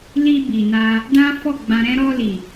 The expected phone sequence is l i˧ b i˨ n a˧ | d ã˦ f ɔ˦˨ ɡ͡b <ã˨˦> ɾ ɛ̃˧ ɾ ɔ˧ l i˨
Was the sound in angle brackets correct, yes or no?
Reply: no